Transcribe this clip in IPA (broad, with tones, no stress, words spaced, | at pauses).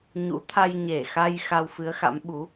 ɲṵ˧˥t̪ʰa˧j ɲe˧˩xa˧j xa˧wfɨ˨˦ə̯xa̰˧˥m ɓu˨˦